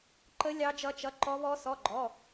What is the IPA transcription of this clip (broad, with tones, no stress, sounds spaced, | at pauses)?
ǃ ə˦˥ lʲ ɑ˦˥ d͡ʒ ʌ˦˥ t͡ʃ ʌ˧˥˧ ǃ ɔ˦˥ β ɔ˦˥ s ɔ˧˥˧ ɡ͡ǃ ɔ˧˥˧